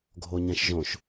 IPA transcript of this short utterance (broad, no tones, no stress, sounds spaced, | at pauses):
ɡʱ o ɲ ɛ̃ ʃ ʒ õ ʃ